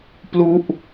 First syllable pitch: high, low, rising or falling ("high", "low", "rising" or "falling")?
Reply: falling